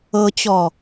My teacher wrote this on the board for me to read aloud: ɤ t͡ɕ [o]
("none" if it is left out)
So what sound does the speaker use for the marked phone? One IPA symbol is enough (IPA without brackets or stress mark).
ɔ